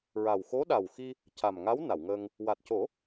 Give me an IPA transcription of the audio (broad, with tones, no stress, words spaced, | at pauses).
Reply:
ɹa˨˩w xo˧˥ɗa˨˩wxi˧ | ca˨˩mŋa˧˥w na˨˩˨wŋəː˧ŋ | wa˨˩t̚co˨˩˦